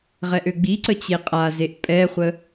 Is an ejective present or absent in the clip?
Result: present